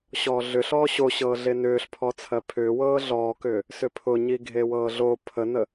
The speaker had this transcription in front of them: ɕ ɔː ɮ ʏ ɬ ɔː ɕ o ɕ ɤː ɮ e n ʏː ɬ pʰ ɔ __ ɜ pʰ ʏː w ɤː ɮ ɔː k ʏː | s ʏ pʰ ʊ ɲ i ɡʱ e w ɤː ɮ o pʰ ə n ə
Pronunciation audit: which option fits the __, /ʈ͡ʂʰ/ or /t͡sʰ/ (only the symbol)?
t͡sʰ